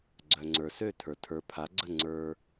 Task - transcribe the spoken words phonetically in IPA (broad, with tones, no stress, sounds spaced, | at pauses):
ɡ͡ǀ œ˩ ŋ͡ǀ ə˞˩ s ø˥˩ tʰ ə˞˩ tʰ ə˞˩˥ pʰ a˩˥ ɡ͡ǀ ə˥˩ ŋ͡ǀ ə˞˧